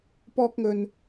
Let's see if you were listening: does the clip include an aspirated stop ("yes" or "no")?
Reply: no